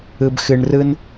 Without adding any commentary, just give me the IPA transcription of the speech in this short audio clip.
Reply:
ɯ˨ b x ɨ˨ ɳ r ɯ˦ n

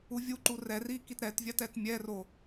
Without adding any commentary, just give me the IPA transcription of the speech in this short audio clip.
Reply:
u vʲ u ǃ u r ɛ r i k i t ɾ ɛ t vʲ a t ɛ t mʲ ɛ r o

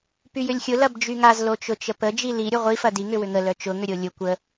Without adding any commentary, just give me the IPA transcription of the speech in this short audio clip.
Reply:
p y j ʏ lʲ xʲ ʊ l ɐ b d͡ʒ y ŋ a z l o t͡ʃ ʊ t͡ʃ ə p ə d͡ʒ i l i ɾʲ ʊ ʁʷ i f ɐ d i ŋ ʏ w ʏ ŋ ə l œ t͡ʃ ʊ ŋ ʏ ɾʲ o lʲ ʊ kʷ ə

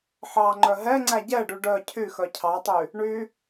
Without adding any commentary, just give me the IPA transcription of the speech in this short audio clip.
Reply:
ħ ɑ ŋ͡ǃ œ ɦ ɛ ŋ͡ǀ æ ɟ ɛ ɖ y ɖ œ cʰ y x œ cʰ ɑ tˤ y | ɳ y

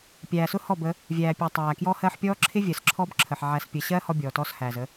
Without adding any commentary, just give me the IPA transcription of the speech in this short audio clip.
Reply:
pʲ æː˨ s ʊ˦ h ɔ˦˨ b ə˨˦ | vʲ æː˨ pʲ æ˨ tˤ æː˨ k j ɔ˦ h ɜ˦ ħ pʲ ɔː˦ ǁʰ ɪ˦ vʲ ɜ˨ s ǁʰ ɔ˦ b ǁʰ ə˨ ħ ʕ æ˨ s pʲ ə˨ ɕ ɜː˦ h ɔ˦ bʲ ɔː˨ t ɔ˦ s h æː˨ z ə˦

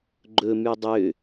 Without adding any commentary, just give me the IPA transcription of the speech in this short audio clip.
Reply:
ɡ͡ǃ ɵ m y dˤ ø

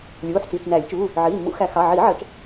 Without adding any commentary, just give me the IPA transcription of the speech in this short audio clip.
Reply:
lʲ uː˩˧˩ ħ t͡s iː˩˧˩ t͡s n æː˨˩˦ lʲ t͡ʃ uː˩˧˩ | ʕ iː˩˧˩ mː ṵ˨˩˦ x æ˨˩˦ x ɑ˩˧˩ ʕ iː˨˩˦ ʕ ɜ˨˩˦ t͡ʃ

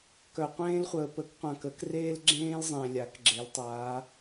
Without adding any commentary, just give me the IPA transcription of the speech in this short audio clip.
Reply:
k œ˨ qʷ ẽː˦ l χʷ əː˨ p ə˨˦ k qʷ ã˨ k ə˨˩˦ k r eː˦ l ɡ͡ǁ ẽː˦ l zˤ ẽ˨ lʲ a˨˩˦ k ɡ͡ǁ e˨˦ l tˤ aː˨˦

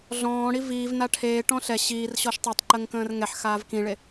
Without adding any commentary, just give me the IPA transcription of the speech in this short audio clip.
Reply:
ɮ ɔ̃ː ɽ i v iː v n a ʈʰ eː ʈ ɔ̃ ɬ ɛ ɕ iː r ɕ ɔ ʃ tˤ i tˤ ǃ ə ŋ k ə̃ː r ŋ ɛ ħ x aː v k ĩ ɭ e

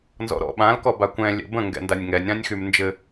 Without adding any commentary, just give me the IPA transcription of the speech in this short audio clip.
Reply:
n z ɔ̰ ɾ ɔ̰ ɓ ã l k ɔ b a kʷ ɛ̃ lʲ ɛ̰ b ə̃ ŋ ɡ ɛ̰ n d a nʲ ŋ ɛ nʲ ɾ ã nʲ x y m n d͡ʒ ɘ

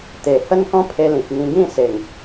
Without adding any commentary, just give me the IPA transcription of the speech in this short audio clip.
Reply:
t̪ e˨˩ h ə˦ n k ɔ̃˦ pʰ e˧ l ĩ˨ k̚ ŋ ĩ˧ ɡ ĩ˥˧ s e˨˩ ŋ

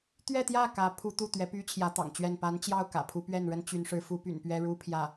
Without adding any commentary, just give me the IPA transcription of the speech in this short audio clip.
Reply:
t̪ ɥ ɛ˥˧ t̪ j ä˥˩ k ä˧˥ pʰ u˥ t̪ u˥˩ t̪ ɥ ɛ˧˥ p y˥ t͡ɕʰ j ä˧˥ t̪ ɑ̰˨˩ ŋ t͡ɕ ɥ ɛ˥˩ n p a˧˥ n t͡ɕ j ɑ˥˩ ʊ̯ k ä̰˨˩ pʰ u˧˥ p ɥ ɛ˥˩ n ɻ ə˥ n t͡ɕ y˧˥ n ʂ ɻ̩˧˥ f u˥ p y̰˨˩ n p ɥ ɛ˥ ɻ u˥ pʰ j ä˥˩

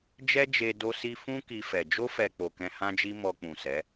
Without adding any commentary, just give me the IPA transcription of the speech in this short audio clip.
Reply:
d͡ʒ ɛ˦ d͡ʒ e˧ d o˦ s i˦ f ũ˦ k i˧ f ɛ˨ d͡ʒ o˧ f ɛ˨ k͡p o˨ k ɛ̃˧ h ã˦ d͡ʒ i˦ m ɔ˧ k͡p ũ˨ s ɛ˨˦

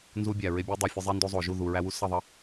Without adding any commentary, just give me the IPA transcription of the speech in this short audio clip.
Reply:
n z u˧ bʲ æ˨ ɹ e˧ bʲ u˧ dˤ e˨ fʲ ʌ˧ zˤ i˧ n d o˧ zˤ o˨ ʒ u˦˨ ð u˨ ɹ æ˧ w u˧ s ʌ˦˨ ðˤ ʌ˦

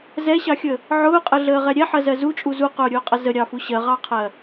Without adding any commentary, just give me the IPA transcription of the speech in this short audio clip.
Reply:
z ɛ ɕ ɑ xʲ ə | ʕ ʊː qʼ ə ɮ əː ʁ ɛ ɾʲ ɛ ħ ɜ z ɜ z u t͡ʃʼ u z u q ʊː ɾʲ ʊː qʼ ə z ə ɾʲ ɑ f u ɕ ɜ ʁ ɑ qʰ ɜ

